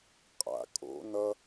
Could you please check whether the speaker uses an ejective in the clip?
yes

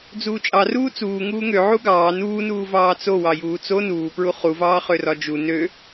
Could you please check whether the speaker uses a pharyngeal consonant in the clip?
yes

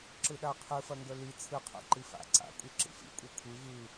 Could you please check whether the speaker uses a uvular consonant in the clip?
yes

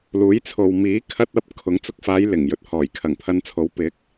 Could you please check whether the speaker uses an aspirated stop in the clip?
yes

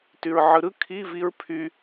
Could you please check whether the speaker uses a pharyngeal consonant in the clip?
yes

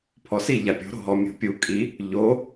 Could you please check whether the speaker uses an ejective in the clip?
yes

